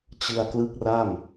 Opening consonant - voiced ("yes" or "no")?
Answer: no